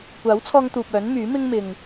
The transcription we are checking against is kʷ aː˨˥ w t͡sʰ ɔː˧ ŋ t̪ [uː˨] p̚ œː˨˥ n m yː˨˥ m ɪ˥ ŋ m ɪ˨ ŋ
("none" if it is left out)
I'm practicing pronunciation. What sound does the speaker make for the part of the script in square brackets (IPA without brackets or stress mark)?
uː˨